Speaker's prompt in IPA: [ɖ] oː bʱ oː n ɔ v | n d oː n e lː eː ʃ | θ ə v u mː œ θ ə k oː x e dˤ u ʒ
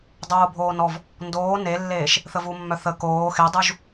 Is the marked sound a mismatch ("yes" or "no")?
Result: yes